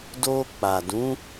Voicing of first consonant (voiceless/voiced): voiced